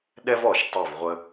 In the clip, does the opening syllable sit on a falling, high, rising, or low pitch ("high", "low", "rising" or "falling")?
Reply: high